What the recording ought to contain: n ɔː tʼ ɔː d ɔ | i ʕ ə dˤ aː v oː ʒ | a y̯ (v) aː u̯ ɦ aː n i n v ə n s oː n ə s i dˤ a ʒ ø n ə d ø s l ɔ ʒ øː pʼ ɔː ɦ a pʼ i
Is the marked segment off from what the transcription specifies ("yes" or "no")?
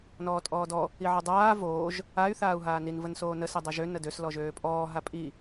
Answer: yes